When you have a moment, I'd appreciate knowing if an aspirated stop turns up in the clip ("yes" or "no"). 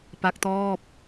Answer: no